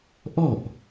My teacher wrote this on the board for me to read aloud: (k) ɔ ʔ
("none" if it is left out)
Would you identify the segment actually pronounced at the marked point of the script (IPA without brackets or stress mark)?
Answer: ʔ